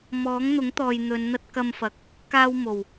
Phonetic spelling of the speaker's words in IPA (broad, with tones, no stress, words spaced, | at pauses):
mɔː˨˥ŋn̪ʊ˨˥ŋ t̪ɔː˨j n̪ɵ˨˧nn̪ɐ˥t̚ kɐ˧mfɐ˨k̚ | kaː˥wmo˨˩w